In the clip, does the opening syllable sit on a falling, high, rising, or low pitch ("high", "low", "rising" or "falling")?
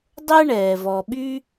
high